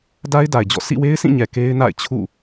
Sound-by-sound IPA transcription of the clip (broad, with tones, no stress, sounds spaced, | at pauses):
d a˦ ɪ̯ d a˨ ɪ̯ d͡ʑ ɔ̰˦˨ s ḭ˦˨ w e˦ ɪ̯ s ĩ˦˨ ɲ ɛ˨ k e˦ ɪ̯ n a̰˦˨ ɪ̯ t͡ɕʰ ṵ˦˨